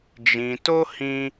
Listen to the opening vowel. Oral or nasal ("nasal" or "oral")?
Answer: nasal